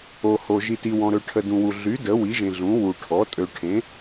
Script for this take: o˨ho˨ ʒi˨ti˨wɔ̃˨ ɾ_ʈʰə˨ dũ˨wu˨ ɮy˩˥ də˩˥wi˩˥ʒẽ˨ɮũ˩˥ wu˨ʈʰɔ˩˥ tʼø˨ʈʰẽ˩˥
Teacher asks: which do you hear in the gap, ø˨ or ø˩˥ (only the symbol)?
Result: ø˨